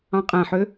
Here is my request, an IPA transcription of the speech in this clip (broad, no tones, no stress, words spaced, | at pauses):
ɑ̃qʼæ̃ħø